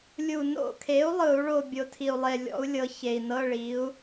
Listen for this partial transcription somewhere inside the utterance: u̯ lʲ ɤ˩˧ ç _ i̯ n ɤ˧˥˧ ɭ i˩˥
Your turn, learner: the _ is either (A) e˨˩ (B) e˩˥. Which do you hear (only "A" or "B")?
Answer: A